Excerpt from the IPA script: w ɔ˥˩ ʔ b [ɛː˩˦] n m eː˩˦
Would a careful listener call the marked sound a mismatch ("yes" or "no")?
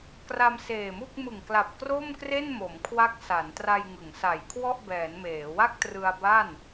no